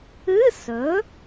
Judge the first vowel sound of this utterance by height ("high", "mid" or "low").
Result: high